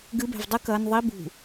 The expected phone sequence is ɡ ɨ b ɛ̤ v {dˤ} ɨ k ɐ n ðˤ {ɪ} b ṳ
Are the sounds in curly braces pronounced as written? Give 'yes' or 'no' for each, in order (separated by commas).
yes, no